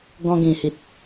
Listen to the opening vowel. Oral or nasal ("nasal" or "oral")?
nasal